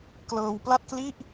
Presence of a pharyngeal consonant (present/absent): absent